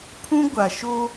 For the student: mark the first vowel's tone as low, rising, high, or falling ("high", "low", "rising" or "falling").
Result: high